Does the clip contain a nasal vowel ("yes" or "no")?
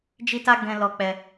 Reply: yes